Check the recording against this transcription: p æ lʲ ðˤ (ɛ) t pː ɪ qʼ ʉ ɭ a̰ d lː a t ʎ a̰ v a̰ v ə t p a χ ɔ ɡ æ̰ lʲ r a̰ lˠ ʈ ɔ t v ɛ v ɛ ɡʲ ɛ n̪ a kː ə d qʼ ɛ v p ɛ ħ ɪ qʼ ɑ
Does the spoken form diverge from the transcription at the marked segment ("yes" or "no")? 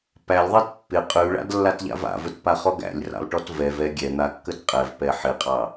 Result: no